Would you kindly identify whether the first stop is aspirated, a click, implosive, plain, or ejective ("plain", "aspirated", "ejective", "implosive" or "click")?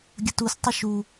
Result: plain